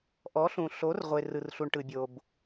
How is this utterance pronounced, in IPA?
ʔ ɔ˨˦ ɬ ũ˨ ɬ o˨˦ r ʁʷ e˨ r ɯ˨ r ɬ u˨ ɳ ʈ ɯ˨ bʲ o˨ b

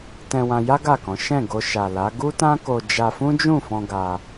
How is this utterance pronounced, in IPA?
t ɛ̃˧ w ã˧ j a˦ ɡ a˦˨ k ɔ̃˨˦ ʃ ɛ̃˦˨ ɡ o˧ ʃ a˨ l a˨˦ ɡ u˦ t ã˦ k o˧ d͡ʒ a˧ f ũ˦ d͡ʒ ũ˦˨ f ɔ̃˧ ɡ a˧

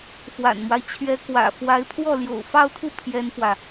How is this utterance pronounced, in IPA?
f w a̰˨˩ n m w a˦ ɪ̯ t͡ɕʰ ɥ ɛ˧˥ k w ä̰˨˩ f w a˧˥ ɪ̯ pʰ w ɔ˥˩ l j o̰˨˩ ʊ̯ f ɑ˥˧ ʊ̯ t̪ʰ u˥˩ pʰ j ɛ˥ n f w ä˨

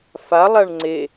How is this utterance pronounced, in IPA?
f a lˠ a ɳ ŋ͡ǀ e

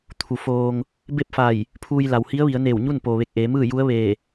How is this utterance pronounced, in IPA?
t̪ʰ u˩ f oː˧ ŋ | b e˥˨ p̚ f a˧˩ j | pʰ uː˧ j l a˩ w h i˧˥ ə̯ ʋ i˩˧ ə̯ n eː˧˩ w ɲ u˥˨ n p oː˩ ʋ e˧˩ k̚ ʔ eː˩˧ m ɯː˥˨ j u˧˥ ə̯ ʋ eː˧˩

